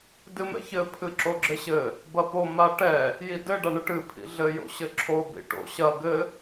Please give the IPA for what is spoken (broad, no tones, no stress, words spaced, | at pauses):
dɨmɛ̰çɘ pʰɨǁoɡ͡ǁɘɕɘ | bɐpo maʈɛ | jidɘ ɖaɳɨʈɨ pʰḭɮɘ jo̰ɕɘǁʰo bḭʈo̰ ɕɐ ɡɘ